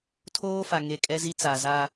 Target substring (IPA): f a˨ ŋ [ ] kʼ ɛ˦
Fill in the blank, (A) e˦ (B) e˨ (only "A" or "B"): B